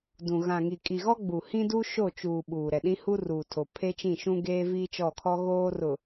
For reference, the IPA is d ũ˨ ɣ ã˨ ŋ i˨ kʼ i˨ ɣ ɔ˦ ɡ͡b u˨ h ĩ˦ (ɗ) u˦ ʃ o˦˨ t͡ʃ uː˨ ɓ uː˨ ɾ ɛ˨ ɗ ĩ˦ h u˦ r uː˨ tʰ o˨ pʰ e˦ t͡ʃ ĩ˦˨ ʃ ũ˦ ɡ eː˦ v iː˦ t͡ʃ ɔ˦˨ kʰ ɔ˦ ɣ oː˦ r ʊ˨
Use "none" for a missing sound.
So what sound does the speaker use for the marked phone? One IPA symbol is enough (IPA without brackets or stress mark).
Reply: d